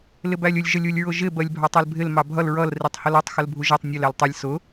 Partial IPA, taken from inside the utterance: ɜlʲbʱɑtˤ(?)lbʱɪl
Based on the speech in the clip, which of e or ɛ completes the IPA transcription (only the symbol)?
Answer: ɛ